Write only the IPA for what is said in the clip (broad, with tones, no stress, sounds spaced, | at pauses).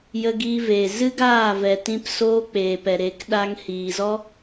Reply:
j ə˧ ɡ iː˧ v eː˨ z ɨ˦ ɡ aː˦˨ v ɛ˨ t ĩ˧ p s oː˧ k͡p eː˨ p ɛ˨ ɾ e˨˦ k ɗ a˧ ŋ h iː˨ z ɔ˦